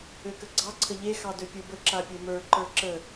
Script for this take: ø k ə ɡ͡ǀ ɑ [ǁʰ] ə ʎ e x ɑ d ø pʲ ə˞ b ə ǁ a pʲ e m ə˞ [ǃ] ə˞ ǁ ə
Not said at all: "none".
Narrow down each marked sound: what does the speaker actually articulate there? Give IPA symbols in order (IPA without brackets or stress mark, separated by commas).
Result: ǀʰ, ǃ